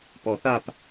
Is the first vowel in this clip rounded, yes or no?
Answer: yes